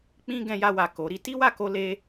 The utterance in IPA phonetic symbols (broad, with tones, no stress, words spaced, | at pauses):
k͡pĩ˦ ɡɛ̃˧ja˧wa˨ ko˨˦ɾi˦ ti˦wa˦˨ko˧ le˦